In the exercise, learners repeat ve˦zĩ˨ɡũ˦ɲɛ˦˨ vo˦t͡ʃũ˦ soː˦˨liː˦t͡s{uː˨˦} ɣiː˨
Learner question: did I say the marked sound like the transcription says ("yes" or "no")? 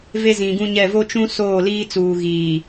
no